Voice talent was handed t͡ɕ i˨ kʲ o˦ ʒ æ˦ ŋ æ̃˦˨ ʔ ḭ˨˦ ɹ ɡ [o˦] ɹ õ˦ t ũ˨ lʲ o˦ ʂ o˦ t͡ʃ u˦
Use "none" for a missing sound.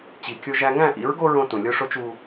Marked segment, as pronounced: o˦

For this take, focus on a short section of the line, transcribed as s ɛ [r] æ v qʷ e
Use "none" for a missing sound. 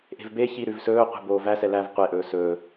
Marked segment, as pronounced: l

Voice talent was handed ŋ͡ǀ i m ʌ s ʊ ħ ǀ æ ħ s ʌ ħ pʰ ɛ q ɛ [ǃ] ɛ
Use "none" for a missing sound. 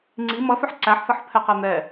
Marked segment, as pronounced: n̪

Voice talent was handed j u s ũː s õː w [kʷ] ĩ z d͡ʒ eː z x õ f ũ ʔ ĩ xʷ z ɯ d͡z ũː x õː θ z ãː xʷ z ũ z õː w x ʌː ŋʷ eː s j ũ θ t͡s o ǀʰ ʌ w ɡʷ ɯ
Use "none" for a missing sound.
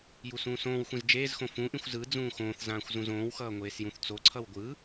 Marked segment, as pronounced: xʷ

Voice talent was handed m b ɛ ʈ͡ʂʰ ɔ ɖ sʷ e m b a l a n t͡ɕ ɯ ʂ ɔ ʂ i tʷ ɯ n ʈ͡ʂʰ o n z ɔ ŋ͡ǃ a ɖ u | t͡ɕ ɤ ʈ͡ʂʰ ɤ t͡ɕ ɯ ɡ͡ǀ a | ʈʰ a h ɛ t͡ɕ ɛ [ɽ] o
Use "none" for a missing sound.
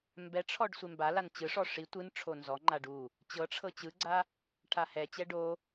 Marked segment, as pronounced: ɖ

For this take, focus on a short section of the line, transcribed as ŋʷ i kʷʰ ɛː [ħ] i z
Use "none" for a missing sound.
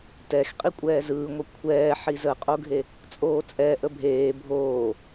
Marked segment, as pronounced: ħ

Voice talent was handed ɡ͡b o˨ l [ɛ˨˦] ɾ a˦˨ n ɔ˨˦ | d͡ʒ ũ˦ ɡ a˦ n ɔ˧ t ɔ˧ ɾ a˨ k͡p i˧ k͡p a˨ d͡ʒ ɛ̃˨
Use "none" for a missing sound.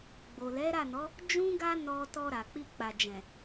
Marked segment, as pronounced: ɛ˨˦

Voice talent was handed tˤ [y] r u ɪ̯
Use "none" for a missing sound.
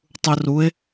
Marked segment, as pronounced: u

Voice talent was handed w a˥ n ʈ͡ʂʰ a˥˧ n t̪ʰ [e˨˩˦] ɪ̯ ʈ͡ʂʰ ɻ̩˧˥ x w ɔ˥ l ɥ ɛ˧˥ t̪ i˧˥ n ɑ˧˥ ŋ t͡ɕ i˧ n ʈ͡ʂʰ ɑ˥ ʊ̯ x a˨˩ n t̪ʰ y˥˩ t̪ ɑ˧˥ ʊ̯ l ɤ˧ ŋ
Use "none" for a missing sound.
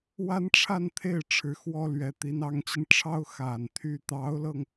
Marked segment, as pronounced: e˥˩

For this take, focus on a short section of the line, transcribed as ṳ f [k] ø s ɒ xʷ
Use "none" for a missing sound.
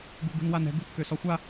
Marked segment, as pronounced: k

